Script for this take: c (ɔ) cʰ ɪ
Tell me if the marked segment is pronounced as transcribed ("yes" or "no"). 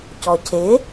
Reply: yes